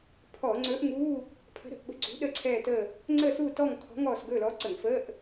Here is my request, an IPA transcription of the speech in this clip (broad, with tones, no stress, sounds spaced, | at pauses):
pʰ ɔː˧˩˧ ŋ͡ǀ ɵː˧˥ ʔ ŋ uː˧˥˧ | pʰ ə̤˧˥ ɾ ə̤˦˨ ʔ ɓ ə̤˧˥ ɡ͡ǀ ṳ˧˥ ɗ ə˦˨ ǀʰ ɛː˦˨ t əː˦˨ | ŋ͡ǀ əː˦˨ s uː˦˨ t ɔ˦˨ ŋ kʰ ɔ̤˧˥ ŋ ɔː˦˨ s ɡ ɵː˦˨ l ɔ˧˥ ǀ ə˧˩˧ ŋ f əː˧˥˧ ʔ